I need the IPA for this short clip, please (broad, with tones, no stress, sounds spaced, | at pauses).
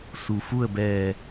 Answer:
s u˩ f u˥˨ ə̯ b ɛː˧˩